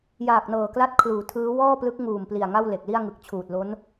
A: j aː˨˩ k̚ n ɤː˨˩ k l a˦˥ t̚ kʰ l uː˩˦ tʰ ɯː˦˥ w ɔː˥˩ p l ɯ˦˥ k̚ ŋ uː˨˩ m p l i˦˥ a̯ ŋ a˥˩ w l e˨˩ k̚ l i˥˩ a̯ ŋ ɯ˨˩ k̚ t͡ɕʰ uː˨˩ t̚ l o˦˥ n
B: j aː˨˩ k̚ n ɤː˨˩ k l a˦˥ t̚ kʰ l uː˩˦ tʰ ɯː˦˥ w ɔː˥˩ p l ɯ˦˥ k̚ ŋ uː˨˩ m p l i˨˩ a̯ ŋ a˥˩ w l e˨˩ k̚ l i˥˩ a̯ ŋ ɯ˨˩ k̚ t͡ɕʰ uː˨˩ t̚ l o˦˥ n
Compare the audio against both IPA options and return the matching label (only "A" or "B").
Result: B